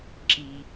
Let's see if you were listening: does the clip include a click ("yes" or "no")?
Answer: yes